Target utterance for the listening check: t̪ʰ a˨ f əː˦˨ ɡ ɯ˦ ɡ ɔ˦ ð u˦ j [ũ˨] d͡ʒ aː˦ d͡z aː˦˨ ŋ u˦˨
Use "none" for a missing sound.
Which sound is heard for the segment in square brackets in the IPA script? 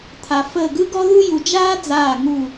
u˨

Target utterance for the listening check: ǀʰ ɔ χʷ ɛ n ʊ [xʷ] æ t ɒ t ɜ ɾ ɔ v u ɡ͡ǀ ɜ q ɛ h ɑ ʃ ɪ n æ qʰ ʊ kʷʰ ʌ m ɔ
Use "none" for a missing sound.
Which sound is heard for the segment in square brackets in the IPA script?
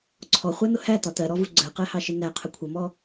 h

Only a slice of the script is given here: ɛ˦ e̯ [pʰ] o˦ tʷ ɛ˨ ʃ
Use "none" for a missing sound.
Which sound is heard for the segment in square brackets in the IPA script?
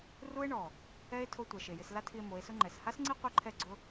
tʰ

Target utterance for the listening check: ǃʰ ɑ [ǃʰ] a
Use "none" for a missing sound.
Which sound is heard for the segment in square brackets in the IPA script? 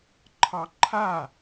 ǃʰ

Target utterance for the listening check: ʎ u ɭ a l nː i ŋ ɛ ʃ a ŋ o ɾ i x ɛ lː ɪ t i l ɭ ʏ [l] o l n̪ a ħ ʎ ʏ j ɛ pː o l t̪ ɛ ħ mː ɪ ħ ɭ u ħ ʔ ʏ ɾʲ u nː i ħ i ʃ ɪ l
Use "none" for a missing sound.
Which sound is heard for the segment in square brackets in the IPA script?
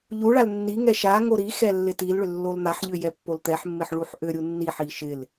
lː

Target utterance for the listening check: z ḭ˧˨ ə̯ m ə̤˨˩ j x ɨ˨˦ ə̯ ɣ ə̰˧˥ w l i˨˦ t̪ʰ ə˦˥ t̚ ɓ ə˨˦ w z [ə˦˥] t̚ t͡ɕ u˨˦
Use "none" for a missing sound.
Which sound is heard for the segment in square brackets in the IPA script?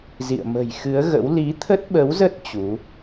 ə˦˥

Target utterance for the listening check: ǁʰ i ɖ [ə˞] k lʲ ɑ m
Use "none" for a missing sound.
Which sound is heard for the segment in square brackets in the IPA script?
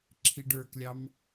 ə˞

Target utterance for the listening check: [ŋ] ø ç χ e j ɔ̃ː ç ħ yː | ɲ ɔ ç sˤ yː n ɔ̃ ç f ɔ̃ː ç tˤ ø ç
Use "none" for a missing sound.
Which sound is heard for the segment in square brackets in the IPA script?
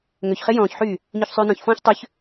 ŋ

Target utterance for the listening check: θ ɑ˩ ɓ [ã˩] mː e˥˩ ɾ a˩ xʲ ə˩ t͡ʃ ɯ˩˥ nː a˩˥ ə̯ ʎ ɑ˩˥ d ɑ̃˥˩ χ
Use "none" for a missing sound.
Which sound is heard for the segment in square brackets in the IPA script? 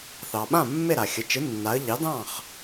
ã˥˩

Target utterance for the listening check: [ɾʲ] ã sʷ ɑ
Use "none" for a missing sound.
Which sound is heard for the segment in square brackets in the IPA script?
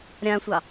ɾʲ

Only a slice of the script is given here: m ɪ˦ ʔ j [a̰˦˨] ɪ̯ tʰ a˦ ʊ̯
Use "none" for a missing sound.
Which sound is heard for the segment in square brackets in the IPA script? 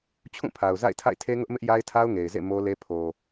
a˦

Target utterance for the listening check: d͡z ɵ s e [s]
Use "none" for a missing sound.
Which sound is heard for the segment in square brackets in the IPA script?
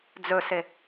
none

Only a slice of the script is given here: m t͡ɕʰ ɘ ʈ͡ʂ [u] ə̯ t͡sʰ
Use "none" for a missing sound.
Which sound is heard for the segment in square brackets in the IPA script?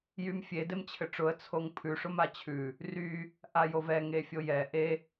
ʊ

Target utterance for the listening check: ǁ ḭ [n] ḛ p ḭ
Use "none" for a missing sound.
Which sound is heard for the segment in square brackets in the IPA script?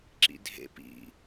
dʱ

